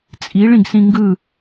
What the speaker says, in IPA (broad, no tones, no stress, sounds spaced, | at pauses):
t͡sʼ i ɭ ĩ ɡ s ĩ ŋ ɡ ɯ